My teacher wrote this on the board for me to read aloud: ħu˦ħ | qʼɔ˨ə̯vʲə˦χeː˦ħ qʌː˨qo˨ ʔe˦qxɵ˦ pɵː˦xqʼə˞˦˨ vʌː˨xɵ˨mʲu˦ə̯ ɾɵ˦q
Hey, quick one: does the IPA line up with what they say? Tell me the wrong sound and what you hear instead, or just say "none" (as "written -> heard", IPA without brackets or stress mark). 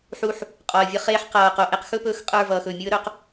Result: none